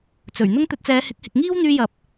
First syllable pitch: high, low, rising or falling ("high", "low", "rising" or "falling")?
low